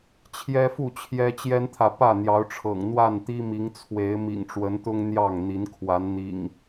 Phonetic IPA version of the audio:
t͡ɕʰjɛ˦fu˥˨ t͡ɕʰjɛ˦t͡ɕjɛ˦nt̪ʰä˨ pä˥˨n̪jɑ˨˦ʊ̯ʈ͡ʂʰɤ̰˨˩ŋ n̪wa˥˨nt̪i˦mi˨˦ŋt͡sʰwe˨˦ɪ̯ mḭ˨˩ŋʈ͡ʂwə˨˦nt̪ʊ˦ŋ n̪jɑ˥˨ŋn̪i˨˦n kʰwa˨˦nn̪ḭ˨˩ŋ

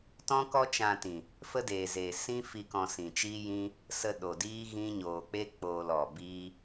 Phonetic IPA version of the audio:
tɔ̃˦kɔ˦ t͡ʃã˧tĩ˨ | fə˦deː˨zeː˨ sĩ˦fi˧ kɔ̃˧sĩ˨t͡ʃiː˦jĩ˦ | sə˧ ɗo˨diː˦ ɣĩ˦ ɲoː˨k͡pe˦ k͡poː˧l ɔ˨bi˦

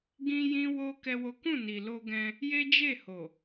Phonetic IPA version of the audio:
ɡĩ˦jĩ˦ wo˦ kɛ˦wo˦ kũ˦˨ni˨lo˧ɡɛ̃˧ | je˦d͡ʒe˦˨ho˨

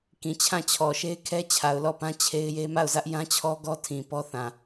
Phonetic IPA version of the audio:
kĩ˨t͡ɕʰã˦˨t͡ɕʰɔ˨ ʃe˦ɪ̯kʰɛ˦ t͡ɕʰa˨ʊ̯lɔ˦˨pã˦ t͡ɕʰe˦ɪ̯je˦ ma˦˨ʊ̯zä˦ʔjã˦t͡ɕʰɔ˦ ɡɔ˦tʰĩ˨ pɔ˦θã˨

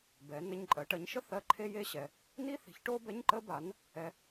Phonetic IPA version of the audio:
bɛ˩˥ nə˧˥˧ɲǃʼɜ˩˥ ʈɜ˩˥ɲʃə˥ θɜ˧˥˧ǃʰe˥ je˧˥˧ɕɛ˨ | ni˥θi̤˩˥çʈo˥ bɛ˧˥˧ɲǃə˥ba˩˥n | ɛ˥

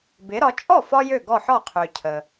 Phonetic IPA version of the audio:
bɪ˩˥ɾɒ˩˥ t͡ʃʼɔ˥˩ fɒ˥ jø˥˩ɡɔ˥˩ ħɒ˥˩ qʰø˩ cʰə˩

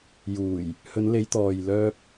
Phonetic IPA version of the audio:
juː˨˩j | hɵ˨˧nle˨˧jt̪ɔː˨j lœː˧p̚

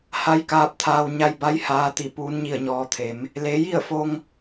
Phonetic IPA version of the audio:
ha˧˥jkaː˧p̚t̪ʰaː˧w ɲa˧jba˧˥j haː˧t̪i˧˩ puː˧˥nɲi˥˨ə̯ɲɔː˧t̪ʰe˩˧m | le˩˧ji˥˨ə̯fo˧ŋ

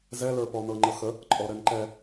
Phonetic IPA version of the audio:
zɛlə˞pɔ nɤŋ͡ǃəxə | ǃʼɔɾɛnǃɛ

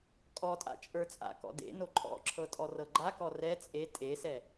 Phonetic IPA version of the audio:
kʼɔtʼa̰ t͡ʃʼə˞t͡sʼa̰kɔ̰ dḛ noǃʼɔ̰ǁʰɤ tʼɔrɤɡ͡ǃakɔ rɛ t͡sʼe tʼesɛ

